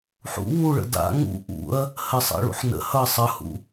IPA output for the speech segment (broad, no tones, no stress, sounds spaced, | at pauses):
ħ ṵ w u ɭ ə̰ d a̰ ŋ ṵ ʔ ṵ ɐ̯ | h ə sˤ a̰ ɭ ṵ ħ n ə̰ h ʌ sˤ ʌ h ṵ